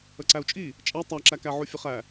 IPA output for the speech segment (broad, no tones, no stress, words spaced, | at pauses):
əǀæu̯t͡ʃʼi | t͡ʃʼæ tˤæǁækæʕu fʲəχæ